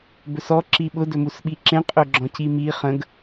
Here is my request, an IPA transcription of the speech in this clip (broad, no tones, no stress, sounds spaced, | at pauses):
b ɵ s ɔ ǁ i ɓ ʊ d ɵ m u s ɓ i ǁ ẽ qʼ ɵ ɡ͡ǁ ɔ̃ c i m i χ ə̃ ɡ